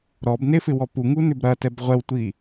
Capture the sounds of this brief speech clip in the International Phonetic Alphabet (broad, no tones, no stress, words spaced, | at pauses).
ɾɔbnefɪwɔ puŋunʏb ɾɐtɛb ʁʷɛwtʷi